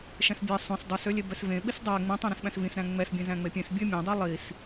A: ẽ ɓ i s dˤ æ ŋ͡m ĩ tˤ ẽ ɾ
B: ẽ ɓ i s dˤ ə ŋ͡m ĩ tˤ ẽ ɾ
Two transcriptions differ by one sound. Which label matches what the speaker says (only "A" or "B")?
A